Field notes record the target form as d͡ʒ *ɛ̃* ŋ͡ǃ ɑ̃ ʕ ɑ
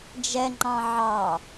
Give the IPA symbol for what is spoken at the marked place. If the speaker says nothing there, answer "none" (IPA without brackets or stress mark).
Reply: ɛ